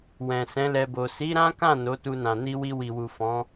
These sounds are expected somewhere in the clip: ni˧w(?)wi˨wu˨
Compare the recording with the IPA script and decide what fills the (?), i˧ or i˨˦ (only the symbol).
i˧